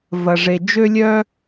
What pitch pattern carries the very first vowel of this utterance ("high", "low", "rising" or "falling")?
low